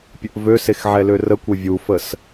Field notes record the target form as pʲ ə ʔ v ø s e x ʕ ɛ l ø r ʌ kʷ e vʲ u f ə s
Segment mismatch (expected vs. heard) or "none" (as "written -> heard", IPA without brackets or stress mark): ʌ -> ə